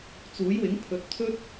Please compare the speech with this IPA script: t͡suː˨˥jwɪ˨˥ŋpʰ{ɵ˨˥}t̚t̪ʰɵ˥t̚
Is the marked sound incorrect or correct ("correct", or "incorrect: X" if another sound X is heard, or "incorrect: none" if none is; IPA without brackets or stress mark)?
correct